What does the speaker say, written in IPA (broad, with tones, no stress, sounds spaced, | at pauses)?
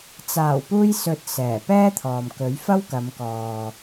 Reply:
t͡s aː˨˩ w p uː˧ j s ɵ˨ t̚ s ɛː˨˩ p ɛː˥ t̪ʰ ɔː˨ m k ɵ˨˥ ɥ f ɐ˥ w k ɐ˨˧ m k ɔː˨